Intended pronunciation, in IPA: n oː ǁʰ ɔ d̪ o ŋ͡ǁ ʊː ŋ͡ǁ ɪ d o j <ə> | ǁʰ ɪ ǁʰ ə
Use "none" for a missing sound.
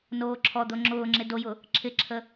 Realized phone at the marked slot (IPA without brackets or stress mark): ʊ